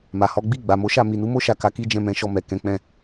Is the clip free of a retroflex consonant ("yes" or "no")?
yes